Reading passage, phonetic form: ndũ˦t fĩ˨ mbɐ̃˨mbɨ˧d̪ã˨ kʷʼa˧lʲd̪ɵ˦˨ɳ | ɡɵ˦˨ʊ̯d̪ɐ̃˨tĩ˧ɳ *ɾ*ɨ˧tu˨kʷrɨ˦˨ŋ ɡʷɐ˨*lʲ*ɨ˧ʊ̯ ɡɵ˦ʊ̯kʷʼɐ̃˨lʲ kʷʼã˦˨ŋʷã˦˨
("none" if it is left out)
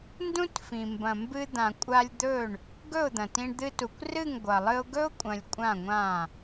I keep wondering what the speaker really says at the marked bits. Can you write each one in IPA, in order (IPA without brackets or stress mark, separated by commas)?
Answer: d̪, lˠ